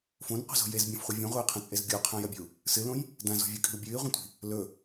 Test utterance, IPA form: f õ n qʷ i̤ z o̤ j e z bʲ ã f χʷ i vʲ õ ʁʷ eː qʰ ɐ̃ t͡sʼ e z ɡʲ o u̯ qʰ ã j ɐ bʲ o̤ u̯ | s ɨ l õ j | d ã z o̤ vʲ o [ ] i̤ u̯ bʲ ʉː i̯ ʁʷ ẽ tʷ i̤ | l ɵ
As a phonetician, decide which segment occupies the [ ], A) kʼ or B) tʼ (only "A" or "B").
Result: A